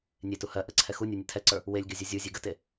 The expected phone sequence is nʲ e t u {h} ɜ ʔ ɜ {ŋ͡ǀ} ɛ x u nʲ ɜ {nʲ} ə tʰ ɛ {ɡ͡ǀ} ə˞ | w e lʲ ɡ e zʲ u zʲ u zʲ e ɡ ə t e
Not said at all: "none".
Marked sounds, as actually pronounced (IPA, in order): h, ǀʰ, nʲ, ǀ

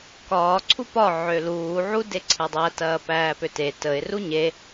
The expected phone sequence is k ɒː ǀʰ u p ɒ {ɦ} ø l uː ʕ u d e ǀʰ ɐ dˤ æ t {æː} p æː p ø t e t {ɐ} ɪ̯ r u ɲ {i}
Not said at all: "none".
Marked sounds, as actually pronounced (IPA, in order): ʕ, ɐː, ə, e

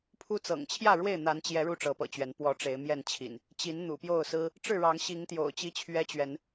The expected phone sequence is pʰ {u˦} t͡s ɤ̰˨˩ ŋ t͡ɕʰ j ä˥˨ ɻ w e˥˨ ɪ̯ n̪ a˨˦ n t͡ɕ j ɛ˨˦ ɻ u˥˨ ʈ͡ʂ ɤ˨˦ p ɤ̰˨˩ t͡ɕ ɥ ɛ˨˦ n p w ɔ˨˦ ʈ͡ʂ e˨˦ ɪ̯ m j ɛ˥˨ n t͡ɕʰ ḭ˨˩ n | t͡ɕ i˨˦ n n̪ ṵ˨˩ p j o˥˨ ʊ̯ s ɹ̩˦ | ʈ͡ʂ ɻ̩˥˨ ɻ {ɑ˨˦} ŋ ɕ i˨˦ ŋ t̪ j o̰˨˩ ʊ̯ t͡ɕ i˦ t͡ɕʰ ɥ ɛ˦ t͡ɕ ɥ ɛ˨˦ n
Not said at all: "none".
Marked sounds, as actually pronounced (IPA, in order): u˦, ɑ˨˦

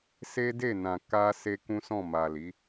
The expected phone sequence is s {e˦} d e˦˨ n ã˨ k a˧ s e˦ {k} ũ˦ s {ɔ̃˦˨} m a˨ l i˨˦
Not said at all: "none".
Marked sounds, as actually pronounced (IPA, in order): e˦, k, ɔ̃˦˨

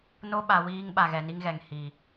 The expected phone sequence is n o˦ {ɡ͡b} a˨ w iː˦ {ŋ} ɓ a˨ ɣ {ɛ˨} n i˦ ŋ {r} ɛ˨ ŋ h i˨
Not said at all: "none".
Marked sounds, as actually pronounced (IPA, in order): ɓ, ŋ, ɛ˨, ɣ

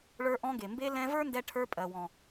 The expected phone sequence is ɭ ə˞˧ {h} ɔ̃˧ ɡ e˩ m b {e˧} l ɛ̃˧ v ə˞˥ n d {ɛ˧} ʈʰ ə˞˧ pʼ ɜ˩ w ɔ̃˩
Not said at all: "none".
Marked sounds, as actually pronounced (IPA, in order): ʔ, e˧, ɛ˧

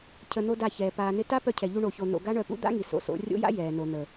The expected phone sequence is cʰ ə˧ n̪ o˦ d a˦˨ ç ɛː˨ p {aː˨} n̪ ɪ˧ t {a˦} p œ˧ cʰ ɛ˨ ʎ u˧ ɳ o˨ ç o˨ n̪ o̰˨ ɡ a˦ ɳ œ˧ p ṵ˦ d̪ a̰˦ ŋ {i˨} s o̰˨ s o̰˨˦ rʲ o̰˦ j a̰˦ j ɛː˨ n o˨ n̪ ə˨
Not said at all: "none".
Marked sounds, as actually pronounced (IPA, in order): aː˨, a˦, i˨

